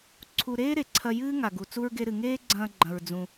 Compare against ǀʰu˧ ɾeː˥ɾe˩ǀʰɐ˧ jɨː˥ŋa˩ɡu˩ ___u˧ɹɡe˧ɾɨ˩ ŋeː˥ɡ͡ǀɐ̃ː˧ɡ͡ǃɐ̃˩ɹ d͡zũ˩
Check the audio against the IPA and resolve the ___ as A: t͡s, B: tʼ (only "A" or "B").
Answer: A